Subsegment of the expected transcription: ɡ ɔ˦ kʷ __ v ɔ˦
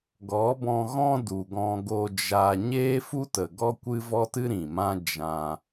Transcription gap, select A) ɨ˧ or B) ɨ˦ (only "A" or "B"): B